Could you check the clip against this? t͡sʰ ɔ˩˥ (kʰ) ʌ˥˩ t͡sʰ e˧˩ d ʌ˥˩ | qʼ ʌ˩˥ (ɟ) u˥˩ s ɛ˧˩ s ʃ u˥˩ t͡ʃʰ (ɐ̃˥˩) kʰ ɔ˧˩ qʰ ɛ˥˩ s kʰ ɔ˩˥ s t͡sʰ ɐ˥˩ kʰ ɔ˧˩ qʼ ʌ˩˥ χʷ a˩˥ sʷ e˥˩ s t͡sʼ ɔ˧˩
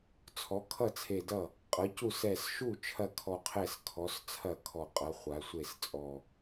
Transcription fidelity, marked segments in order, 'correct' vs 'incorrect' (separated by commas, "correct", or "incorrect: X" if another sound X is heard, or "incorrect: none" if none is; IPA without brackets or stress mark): correct, incorrect: c, incorrect: ɐ˥˩